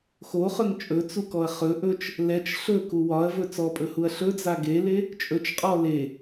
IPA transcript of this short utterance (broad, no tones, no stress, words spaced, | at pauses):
xoχɵŋ t͡ʃʼɵt͡sukɔɐ̯ χɵ ʔɵt͡ʃ | lɛt͡ʃ ɬɵku wɒɐ̯vɵ t͡sɔpʼɵhuɐ̯ ɬɵd͡za ɡele | t͡ʃʼɵt͡ʃqʼɔ le